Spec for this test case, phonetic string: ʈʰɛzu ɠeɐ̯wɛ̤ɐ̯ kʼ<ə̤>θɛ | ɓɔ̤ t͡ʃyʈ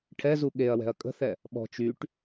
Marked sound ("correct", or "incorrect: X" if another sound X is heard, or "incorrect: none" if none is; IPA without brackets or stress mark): correct